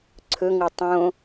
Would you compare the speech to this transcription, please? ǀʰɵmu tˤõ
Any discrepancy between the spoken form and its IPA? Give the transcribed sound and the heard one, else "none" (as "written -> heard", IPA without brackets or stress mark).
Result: m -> ŋ